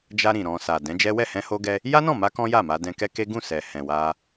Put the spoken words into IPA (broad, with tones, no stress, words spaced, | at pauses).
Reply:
d͡ʒa˧ ɾĩ˨ ɾɔ̃˨ sa˨dɛ̃˨˦d͡ʒɛ˦ wɛ˦˨hɛ̃˧ho˧ɡɛ˧ | ja˦nɔ̃˦˨ma˧ kɔ̃˦ja˦˨ ma˧dɛ̃˧kɛ˦ke˦ ɡũ˦˨ sɛ˨hɛ̃˨wa˧